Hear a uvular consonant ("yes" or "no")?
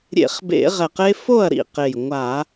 yes